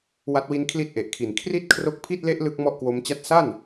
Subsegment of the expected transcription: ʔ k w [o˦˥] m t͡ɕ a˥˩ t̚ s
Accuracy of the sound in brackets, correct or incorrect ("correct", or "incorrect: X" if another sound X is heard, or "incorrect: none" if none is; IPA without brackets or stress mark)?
correct